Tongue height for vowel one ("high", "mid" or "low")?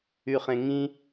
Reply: high